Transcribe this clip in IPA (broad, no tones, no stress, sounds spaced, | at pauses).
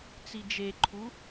t͡s i d͡ʒ e ǃʰ u